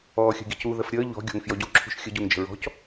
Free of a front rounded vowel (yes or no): yes